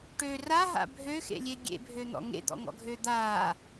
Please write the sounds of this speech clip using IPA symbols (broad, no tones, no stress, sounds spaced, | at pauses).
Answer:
ʈ ø r a ɦ a̰ bʱ ø x ḛ lʲ e ɡʲ ḛ bʱ ø n̪ ɔ̰ ŋ ḛ d̪ ɔ̰ ŋ ɔ̰ ɡʱ øː d̪ aː